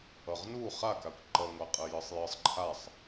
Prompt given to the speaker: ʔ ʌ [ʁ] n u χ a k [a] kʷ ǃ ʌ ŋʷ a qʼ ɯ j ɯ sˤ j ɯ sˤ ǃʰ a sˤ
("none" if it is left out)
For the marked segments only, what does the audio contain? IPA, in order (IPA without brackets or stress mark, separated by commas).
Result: ʁ, a